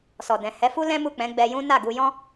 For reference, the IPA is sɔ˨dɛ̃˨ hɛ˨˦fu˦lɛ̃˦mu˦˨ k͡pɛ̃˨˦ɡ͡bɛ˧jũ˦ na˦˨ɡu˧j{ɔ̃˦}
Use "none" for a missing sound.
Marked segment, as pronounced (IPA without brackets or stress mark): ɔ̃˦